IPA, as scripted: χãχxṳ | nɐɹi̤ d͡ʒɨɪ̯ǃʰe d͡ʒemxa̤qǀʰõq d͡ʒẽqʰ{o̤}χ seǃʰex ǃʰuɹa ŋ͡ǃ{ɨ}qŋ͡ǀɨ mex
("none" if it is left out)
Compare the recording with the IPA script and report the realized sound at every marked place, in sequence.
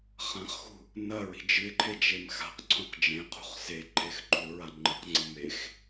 ṳ, ɨ

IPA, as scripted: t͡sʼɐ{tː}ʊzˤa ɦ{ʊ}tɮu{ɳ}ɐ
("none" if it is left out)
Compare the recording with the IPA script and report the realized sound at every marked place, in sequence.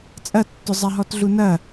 tː, ɔ, n

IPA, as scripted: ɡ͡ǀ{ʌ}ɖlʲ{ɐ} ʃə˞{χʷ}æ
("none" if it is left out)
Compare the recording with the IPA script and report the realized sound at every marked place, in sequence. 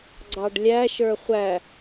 ɑ, æ, χʷ

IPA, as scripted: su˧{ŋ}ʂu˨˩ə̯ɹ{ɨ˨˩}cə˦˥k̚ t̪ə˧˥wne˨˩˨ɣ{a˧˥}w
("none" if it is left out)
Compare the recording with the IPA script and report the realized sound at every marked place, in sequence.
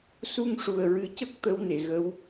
ŋ, ɨ˨˩˦, ə˧˥

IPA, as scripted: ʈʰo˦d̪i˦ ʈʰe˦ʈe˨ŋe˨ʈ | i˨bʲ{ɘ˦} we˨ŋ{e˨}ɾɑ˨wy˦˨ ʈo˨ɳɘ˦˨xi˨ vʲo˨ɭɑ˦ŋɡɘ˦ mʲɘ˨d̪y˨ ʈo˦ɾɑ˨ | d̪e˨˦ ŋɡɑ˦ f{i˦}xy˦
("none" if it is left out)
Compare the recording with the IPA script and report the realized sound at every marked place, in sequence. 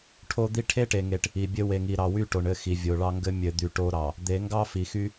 ɘ˦, i˨, i˨

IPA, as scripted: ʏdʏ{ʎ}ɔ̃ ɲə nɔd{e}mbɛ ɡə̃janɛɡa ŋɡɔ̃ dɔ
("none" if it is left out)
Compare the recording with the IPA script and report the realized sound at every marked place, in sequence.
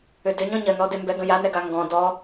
ɲ, e

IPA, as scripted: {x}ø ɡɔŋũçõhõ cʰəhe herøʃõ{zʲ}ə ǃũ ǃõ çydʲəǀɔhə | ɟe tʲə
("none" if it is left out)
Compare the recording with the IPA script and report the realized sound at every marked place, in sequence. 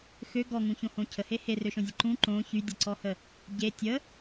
x, zʲ

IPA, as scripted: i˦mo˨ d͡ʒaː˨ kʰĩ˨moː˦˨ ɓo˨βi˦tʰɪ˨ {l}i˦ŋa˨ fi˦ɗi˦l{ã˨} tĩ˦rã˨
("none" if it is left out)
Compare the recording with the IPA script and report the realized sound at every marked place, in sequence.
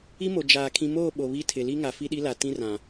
l, a˨

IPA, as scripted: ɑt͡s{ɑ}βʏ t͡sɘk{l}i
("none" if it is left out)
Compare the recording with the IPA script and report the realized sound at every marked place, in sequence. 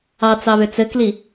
ɑ, l

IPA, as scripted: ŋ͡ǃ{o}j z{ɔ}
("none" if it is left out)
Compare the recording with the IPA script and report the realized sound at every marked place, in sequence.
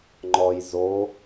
ɔ, o

